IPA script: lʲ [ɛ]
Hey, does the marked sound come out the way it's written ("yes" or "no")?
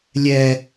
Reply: yes